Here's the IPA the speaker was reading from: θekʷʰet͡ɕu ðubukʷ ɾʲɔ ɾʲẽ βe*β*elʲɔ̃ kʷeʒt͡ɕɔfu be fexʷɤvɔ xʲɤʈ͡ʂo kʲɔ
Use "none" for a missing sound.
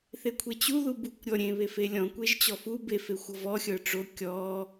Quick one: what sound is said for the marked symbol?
f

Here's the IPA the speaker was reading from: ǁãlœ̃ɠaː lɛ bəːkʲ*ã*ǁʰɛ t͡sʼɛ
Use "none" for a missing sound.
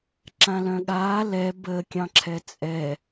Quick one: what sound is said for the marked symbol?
ɑ̃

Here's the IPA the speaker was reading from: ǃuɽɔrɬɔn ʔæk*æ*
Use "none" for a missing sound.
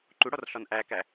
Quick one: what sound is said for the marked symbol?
æ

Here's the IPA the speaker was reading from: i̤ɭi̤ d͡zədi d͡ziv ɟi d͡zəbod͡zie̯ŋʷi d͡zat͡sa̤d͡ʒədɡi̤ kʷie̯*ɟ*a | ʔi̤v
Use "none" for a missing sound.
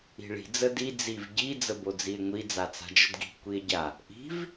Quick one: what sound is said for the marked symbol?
ɟ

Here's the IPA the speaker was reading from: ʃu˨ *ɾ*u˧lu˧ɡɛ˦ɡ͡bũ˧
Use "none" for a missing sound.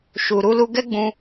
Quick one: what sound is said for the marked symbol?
ɾ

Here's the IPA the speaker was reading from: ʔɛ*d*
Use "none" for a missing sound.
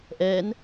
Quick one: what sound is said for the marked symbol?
n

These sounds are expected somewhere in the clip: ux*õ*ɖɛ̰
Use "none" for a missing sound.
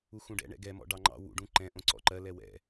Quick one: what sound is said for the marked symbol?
ũ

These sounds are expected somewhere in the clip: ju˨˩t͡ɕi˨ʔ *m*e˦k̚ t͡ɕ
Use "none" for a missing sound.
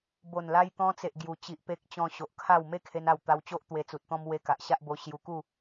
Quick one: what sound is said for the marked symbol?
p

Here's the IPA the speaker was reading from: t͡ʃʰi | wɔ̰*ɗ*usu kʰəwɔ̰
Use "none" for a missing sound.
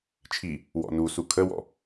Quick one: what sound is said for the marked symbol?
n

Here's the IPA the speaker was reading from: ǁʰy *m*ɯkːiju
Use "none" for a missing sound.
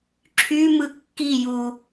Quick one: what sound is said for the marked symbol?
m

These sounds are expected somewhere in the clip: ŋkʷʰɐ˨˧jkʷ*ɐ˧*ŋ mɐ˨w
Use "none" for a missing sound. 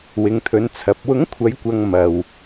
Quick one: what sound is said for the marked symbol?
ɐ˨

